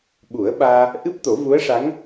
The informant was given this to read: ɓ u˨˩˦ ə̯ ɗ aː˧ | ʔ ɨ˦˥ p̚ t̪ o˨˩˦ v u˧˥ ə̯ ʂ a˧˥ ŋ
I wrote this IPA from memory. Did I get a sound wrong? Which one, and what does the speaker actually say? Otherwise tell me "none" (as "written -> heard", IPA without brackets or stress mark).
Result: ɗ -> ɓ